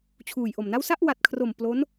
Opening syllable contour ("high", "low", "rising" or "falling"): low